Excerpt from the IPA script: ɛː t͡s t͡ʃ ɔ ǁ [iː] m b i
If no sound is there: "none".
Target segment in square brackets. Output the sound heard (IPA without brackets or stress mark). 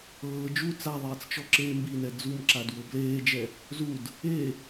eː